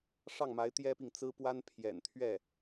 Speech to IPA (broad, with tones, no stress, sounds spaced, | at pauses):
ʂ ɑ˥˩ ŋ m a˧˥ ɪ̯ t̪ j ɛ˥ p i˨ ŋ t͡s ɹ̩˥ p w a˥ n pʰ j ɛ̰˨˩ n t̪ʰ ɥ ɛ˥˩